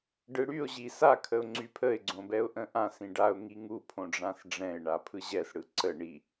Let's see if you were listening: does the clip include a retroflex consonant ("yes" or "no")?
yes